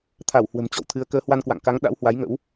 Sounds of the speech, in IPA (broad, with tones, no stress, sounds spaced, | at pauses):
t̪ʰ a˧˩ w h w ə̤˨˩ m t͡ɕ ɔ̰˧˨ w t̪ʰ ɨ˨˦ ə̯ k əː˨˦ h w a˧ n k w a̰˧˨ ŋ k a˨˦ ŋ ɗ a̰˧˥ w h w a˨˦ j ŋ ə̰˧˥ w